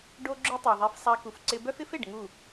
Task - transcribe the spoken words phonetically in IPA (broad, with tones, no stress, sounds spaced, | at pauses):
ɖ o˦ ɡ͡ǁ ʊ˦ tˤ œ˨ ðˤ e˧ f sˤ a˧ k u˨ f ǀ ɪ˧ b œ˦ f ɪ˦ f e˨ ɖ ŋ u˦˨